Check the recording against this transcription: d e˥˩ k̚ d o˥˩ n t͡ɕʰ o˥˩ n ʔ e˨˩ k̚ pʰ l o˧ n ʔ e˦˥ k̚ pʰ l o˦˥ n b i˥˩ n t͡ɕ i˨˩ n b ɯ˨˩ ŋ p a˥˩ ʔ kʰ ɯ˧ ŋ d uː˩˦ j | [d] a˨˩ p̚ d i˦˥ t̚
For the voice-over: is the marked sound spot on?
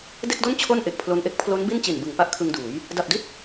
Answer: yes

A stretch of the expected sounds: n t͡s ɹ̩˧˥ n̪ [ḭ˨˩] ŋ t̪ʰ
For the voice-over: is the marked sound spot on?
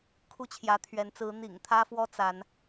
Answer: yes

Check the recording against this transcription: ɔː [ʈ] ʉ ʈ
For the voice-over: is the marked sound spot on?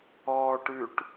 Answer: yes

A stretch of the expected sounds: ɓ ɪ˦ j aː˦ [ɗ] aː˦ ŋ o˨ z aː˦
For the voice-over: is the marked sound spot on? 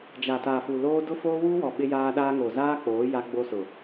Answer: yes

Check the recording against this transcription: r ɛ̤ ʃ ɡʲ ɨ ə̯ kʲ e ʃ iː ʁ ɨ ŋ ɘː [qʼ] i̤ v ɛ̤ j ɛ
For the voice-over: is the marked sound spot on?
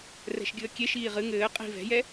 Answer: yes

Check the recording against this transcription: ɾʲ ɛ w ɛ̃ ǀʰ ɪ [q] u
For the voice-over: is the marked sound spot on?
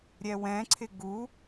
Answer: no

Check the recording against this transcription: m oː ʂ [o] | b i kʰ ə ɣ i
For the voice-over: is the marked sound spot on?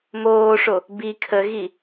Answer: yes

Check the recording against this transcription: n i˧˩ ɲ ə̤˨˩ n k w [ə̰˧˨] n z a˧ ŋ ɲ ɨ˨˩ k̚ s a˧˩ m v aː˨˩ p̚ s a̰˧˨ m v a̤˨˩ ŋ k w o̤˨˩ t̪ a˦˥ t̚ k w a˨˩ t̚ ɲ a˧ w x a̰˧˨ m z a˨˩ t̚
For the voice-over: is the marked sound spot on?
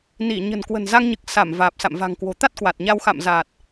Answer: no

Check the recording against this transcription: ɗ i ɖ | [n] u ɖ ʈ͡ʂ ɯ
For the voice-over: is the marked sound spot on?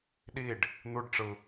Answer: yes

